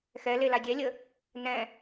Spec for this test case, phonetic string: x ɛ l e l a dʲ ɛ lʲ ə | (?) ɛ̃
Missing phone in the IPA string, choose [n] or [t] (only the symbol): n